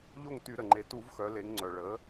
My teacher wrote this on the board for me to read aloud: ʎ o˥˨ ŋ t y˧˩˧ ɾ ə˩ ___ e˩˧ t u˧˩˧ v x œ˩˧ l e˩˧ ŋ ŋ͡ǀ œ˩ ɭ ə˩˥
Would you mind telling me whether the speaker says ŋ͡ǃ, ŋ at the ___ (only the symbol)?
ŋ͡ǃ